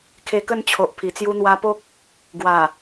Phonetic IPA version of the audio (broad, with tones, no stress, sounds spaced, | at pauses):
kʰ e˧ k ə˥˧ n t͡ɕʰ o˨ ʔ pʰ i˨˩ t͡s j u˧ n̪ w a˧ p o˦ k̚ | ɡ w a˨˩